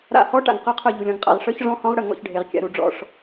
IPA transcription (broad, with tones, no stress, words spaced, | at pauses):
ɾa̰˦˨hɔ˦˥ ʈa̰˨ŋqœ˦˥qʰœ˦˨ ʎu˨lʲɔ̃˨ŋqʼa̰˦˨ʁ ʂœ˦˥çʐɔ̃˦˥hɔ̃˦˥ʁɽə˦˨ ŋɔ̰˦˨çɖʱe˨ʁkʲa̰˨ ɾu˨ɖ͡ʐɔ̰˦˨ʂ